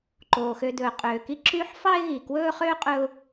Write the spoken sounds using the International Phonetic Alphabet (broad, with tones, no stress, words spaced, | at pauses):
ǃoː˩xø˨d̪ɵː˩ qʼøː˩ki˦ ǁyː˥ħ fɑ˦ɪ̯ɣi˩kwɵː˦ χøː˥qʼɵː˦ʊ̯